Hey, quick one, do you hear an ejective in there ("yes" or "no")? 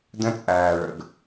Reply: yes